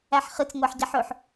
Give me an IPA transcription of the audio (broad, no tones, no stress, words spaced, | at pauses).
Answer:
æħχɨt͡s ŋʷæħɟaħɵħ